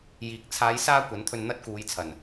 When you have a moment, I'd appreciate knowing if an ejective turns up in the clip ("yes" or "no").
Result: no